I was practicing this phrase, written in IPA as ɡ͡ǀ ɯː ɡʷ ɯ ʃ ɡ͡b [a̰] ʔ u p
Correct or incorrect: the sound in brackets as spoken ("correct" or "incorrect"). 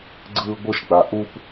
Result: incorrect